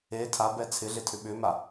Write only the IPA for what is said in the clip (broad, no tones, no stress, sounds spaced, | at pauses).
e tʰ a b ɛ t͡sʰ ɪ ɮ ɪ tʰ ʏ ɓ ʏ m a